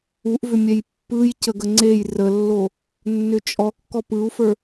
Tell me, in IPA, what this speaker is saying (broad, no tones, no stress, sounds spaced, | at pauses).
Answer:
u ʔ v ʏ mʲ ɛ j pː ɯ j c ə ɡ ə ŋ͡ǀ e j r ə lː o | nː ʏ t͡ʃʼ ɔ kː ɔ p ɯ u̯ f ə˞